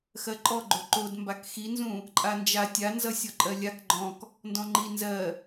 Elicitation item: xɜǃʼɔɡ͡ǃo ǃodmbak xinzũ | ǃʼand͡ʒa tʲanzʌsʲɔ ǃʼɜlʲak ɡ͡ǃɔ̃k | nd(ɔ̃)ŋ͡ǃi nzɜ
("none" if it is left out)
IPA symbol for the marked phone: ɔ̃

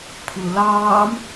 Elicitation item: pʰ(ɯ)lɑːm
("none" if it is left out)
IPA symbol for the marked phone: ɯ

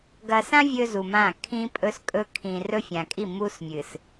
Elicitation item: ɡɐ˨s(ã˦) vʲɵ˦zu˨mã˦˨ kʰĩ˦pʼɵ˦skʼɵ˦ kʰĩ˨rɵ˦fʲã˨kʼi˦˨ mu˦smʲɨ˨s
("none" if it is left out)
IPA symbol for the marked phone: ã˦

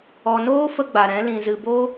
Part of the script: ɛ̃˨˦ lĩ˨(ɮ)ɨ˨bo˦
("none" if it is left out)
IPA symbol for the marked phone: z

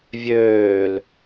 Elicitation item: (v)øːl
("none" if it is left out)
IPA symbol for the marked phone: vʲ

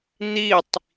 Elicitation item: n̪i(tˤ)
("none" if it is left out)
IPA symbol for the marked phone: tˤ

